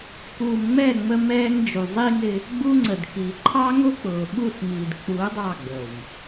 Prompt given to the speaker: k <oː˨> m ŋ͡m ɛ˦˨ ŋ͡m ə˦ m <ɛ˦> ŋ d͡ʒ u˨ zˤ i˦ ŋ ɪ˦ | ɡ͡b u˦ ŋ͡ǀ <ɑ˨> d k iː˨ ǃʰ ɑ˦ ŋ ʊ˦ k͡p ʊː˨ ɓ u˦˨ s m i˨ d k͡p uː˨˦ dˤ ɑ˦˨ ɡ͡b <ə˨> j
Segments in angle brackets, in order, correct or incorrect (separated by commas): incorrect, incorrect, incorrect, correct